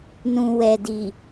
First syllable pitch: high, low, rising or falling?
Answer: low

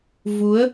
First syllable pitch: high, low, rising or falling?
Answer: rising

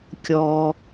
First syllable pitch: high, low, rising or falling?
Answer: low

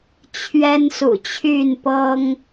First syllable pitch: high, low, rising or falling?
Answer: high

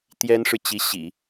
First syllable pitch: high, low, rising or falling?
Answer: high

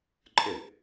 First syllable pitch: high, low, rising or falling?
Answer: falling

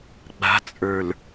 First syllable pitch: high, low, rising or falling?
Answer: rising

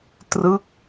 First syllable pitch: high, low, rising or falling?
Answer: falling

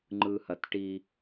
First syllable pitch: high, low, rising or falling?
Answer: low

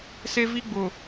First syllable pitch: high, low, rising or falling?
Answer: high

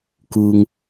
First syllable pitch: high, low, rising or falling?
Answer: low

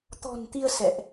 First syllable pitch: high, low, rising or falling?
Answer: low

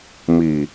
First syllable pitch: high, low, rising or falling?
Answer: low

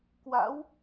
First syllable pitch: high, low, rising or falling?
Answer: rising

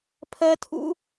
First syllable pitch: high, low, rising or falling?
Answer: high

